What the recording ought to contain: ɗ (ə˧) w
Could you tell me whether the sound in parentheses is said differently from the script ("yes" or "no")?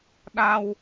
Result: yes